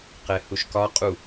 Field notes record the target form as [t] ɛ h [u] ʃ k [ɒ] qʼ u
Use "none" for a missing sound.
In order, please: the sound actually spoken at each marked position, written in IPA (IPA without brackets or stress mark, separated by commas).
q, u, ɒ